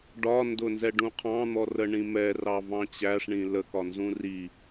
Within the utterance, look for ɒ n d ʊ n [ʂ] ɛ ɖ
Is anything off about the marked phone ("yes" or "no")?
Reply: yes